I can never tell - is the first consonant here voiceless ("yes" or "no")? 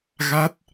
no